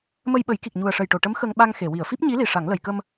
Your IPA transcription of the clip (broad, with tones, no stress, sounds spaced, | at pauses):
m ə˧ j ɓ ə˨˩˦ j k i˨˩ k̚ ɲ u˨˩ ə̯ ʂ ə˨˩ j ʈ o˨˩˨ ʈ ə˧˥ m x ə˧ ŋ ɓ a˧ ŋ x e˨˩˨ w i˨˩˨ ə̯ f i˦˥ p̚ ɲ i˧˥ l i˨˩ ʂ a˨˩˦ ŋ l ə˨˩˨ j k ə˧ m